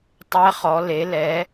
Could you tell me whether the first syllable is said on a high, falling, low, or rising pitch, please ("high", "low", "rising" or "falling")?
rising